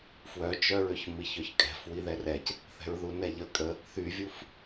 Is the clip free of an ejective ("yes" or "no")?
no